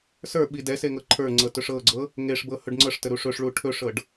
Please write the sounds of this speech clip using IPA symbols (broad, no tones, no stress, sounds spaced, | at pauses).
s ə˞ ɓ i d ɛ s e ŋ ɤ ǃʰ ə˞ ŋ͡ǀ ɤ t ɵ ʂ ɤ ɡ͡ǀ ɤ | ŋ e ʂ b ɤ h ɵ ɖ ŋ͡ǀ ɤ ʂ t ə ɾ u ʂ ɵ ʂ ɭ u ʈʰ ɵ ʂ ɤ ɖ